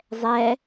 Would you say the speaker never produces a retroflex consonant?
yes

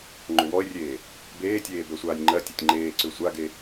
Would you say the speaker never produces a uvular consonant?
yes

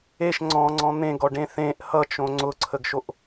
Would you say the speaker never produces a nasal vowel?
no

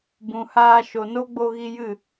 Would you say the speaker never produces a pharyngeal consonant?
yes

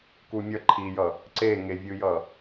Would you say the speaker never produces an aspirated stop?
no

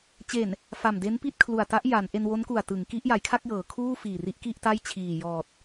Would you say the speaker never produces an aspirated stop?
no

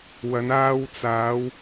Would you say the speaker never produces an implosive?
yes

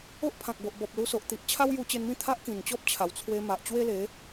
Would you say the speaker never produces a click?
yes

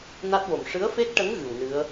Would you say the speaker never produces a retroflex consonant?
no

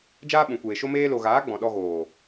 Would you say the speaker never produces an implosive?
no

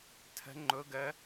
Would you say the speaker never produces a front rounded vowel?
yes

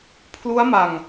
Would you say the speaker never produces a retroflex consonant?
yes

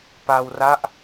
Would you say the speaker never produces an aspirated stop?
yes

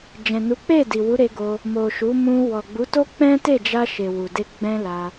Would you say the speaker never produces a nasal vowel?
no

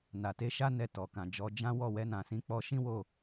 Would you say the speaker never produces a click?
yes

